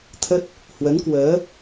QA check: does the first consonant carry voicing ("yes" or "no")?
no